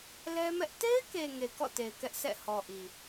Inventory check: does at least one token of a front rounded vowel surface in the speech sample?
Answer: no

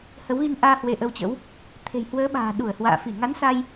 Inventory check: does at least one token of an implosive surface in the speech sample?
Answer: yes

